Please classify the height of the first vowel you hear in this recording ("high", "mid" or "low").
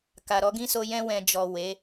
low